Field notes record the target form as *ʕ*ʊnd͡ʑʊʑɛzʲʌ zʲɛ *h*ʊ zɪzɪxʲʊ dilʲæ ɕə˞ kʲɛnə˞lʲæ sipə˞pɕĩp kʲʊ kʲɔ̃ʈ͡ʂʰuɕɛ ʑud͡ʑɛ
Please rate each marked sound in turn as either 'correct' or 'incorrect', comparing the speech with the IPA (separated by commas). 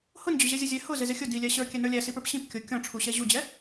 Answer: incorrect, correct